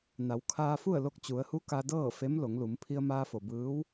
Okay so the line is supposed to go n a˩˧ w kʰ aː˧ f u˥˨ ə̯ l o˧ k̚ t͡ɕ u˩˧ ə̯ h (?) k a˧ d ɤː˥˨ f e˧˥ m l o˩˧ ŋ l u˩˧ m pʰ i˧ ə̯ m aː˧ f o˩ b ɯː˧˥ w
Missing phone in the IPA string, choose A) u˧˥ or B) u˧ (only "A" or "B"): A